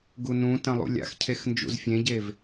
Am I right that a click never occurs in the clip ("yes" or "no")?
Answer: yes